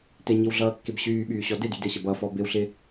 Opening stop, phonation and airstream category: plain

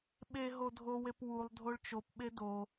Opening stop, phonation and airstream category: implosive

